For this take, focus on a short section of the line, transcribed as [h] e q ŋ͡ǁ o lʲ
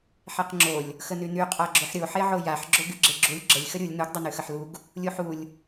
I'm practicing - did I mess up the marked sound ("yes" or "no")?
yes